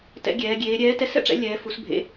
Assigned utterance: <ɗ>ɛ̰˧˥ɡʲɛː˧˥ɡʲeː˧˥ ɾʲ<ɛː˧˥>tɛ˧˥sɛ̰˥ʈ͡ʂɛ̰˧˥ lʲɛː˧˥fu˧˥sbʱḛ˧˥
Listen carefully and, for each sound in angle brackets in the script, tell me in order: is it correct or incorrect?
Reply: incorrect, correct

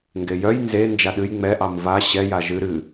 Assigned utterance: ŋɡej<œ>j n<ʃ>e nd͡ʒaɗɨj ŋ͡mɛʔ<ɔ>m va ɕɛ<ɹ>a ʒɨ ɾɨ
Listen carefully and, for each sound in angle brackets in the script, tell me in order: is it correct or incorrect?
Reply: correct, incorrect, incorrect, incorrect

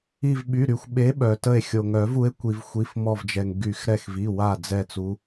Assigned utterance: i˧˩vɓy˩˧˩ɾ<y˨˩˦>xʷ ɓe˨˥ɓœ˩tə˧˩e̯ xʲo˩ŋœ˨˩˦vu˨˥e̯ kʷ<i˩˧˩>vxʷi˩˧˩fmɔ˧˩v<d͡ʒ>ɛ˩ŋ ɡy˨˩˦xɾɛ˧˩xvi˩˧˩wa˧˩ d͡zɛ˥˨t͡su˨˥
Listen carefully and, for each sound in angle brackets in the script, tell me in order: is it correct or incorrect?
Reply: incorrect, incorrect, correct

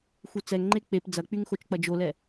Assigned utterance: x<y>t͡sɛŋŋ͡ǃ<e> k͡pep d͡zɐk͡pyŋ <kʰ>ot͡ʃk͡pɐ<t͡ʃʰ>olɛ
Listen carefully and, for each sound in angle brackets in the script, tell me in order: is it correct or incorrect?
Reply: incorrect, correct, incorrect, incorrect

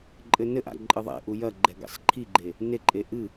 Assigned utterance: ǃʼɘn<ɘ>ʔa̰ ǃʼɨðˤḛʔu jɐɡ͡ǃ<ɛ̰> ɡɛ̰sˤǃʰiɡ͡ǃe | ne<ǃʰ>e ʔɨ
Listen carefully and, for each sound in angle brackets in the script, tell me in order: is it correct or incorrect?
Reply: correct, incorrect, incorrect

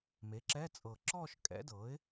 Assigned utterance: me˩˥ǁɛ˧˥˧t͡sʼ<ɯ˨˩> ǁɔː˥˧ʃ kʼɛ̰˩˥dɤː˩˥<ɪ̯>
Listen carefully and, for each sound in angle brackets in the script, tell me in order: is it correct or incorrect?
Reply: incorrect, correct

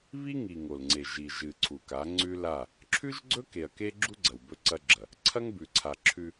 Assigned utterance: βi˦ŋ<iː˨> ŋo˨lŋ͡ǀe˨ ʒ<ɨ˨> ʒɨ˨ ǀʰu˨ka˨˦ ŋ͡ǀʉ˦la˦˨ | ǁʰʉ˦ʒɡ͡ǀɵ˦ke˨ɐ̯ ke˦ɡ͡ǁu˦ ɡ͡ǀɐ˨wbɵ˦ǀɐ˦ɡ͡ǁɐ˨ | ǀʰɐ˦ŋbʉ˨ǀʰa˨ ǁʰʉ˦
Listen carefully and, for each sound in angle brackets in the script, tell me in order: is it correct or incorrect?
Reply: incorrect, incorrect

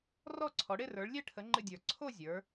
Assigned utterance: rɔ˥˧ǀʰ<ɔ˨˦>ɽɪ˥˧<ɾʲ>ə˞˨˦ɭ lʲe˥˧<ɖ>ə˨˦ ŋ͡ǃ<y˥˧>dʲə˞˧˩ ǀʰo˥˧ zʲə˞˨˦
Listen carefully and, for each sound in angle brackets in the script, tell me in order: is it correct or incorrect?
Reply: correct, incorrect, incorrect, incorrect

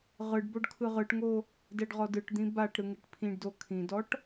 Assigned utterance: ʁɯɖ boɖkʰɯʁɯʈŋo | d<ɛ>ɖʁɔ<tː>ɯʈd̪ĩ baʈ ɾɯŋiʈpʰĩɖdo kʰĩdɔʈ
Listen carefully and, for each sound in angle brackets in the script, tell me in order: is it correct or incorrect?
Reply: correct, incorrect

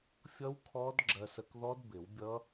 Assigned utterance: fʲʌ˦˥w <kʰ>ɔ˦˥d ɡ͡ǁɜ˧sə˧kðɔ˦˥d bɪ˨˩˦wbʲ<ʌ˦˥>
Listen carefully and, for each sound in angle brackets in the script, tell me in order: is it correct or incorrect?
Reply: correct, correct

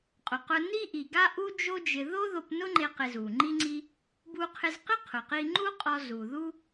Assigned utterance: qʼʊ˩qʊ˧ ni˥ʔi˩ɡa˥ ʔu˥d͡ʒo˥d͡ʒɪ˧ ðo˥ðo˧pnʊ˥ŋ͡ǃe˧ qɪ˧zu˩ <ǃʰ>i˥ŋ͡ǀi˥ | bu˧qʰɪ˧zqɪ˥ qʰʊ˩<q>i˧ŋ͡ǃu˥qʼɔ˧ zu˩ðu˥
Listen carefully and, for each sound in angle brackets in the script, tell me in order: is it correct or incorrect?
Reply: incorrect, correct

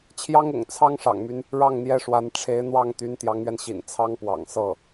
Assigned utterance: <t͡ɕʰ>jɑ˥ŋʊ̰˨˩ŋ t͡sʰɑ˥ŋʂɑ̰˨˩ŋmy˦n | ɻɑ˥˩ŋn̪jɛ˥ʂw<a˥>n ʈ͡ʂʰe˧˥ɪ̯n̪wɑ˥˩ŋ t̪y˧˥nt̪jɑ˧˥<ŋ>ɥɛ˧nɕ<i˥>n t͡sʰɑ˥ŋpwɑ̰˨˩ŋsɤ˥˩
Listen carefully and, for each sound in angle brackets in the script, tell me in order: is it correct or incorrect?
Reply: correct, incorrect, correct, incorrect

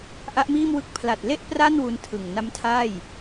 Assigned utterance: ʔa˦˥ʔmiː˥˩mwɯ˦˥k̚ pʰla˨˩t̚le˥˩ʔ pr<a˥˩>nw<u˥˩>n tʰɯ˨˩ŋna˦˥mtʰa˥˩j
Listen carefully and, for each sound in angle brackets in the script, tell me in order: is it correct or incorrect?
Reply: correct, incorrect

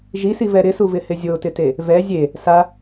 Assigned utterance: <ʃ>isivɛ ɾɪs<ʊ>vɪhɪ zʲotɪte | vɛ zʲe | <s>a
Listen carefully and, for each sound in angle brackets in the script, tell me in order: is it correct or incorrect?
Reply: incorrect, incorrect, correct

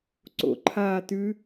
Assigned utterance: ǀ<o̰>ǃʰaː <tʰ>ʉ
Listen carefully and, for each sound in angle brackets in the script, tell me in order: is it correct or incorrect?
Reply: correct, incorrect

